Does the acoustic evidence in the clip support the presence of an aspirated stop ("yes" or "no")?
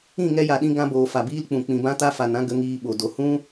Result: no